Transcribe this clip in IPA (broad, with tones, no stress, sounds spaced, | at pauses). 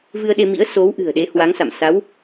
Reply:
v ɨ˧ ə̯ ɗ e˧ m ḭ˧˥ ə̯ s o˨˦ w ʔ ɨ̤˨˩ ə̯ ɗ e˨˦ h w a˨˦ ŋ s a̰˧˨ m s a˨˦ w